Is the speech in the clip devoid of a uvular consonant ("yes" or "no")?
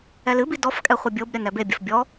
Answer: no